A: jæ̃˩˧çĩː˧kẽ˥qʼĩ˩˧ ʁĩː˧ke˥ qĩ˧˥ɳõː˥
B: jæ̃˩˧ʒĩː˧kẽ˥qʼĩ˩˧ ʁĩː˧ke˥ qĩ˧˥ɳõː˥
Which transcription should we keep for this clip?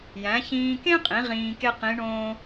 A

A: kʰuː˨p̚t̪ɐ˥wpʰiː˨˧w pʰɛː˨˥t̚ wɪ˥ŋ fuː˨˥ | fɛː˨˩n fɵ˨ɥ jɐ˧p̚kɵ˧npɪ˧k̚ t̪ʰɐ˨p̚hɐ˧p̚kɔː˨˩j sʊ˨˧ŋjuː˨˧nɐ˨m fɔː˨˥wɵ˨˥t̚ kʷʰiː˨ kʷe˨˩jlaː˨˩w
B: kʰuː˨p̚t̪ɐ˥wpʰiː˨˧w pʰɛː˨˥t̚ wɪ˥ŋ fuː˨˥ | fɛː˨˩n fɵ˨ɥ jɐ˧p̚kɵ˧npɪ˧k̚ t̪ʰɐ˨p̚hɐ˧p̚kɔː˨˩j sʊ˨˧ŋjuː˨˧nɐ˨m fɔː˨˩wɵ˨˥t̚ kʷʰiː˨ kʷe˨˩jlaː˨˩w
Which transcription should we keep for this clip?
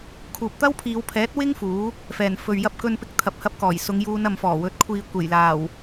B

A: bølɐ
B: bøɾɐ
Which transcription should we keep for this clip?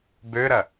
B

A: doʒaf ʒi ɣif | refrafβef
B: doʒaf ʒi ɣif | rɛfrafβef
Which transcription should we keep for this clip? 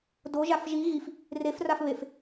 A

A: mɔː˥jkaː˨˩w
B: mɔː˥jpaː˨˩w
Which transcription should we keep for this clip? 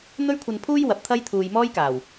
A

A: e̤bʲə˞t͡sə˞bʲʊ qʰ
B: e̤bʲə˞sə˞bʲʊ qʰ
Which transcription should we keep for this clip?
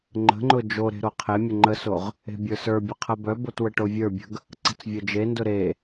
B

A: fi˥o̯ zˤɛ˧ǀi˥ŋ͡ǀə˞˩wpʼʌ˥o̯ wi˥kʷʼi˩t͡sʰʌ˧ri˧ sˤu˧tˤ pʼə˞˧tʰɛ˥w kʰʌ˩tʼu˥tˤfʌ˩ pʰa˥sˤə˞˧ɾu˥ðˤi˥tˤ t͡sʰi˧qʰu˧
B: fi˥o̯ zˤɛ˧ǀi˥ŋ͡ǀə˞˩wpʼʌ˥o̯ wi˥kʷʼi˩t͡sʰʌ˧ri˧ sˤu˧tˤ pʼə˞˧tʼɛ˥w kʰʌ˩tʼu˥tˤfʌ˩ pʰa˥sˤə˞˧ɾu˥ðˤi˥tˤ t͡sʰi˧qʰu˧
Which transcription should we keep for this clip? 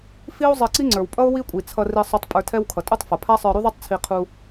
A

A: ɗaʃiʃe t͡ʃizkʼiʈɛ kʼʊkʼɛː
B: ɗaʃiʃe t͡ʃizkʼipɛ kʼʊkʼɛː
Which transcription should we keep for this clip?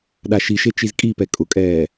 B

